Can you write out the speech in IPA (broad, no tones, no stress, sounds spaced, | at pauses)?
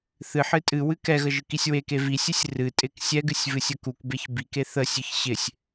θ ɨ ħ ɨ tʼ ɨ w ɨ k ɛ ɣ ə ʒ ɨ k i sʲ w e k e v i sʲ ɨ sʲ r ɨ tʼ ɪ k sʲ ɛ ɡ ɨ sʲ v ɨ sʲ ə k u k b e ç b i k e θ ə sʲ ɨ ç ɕ ɪ sʲ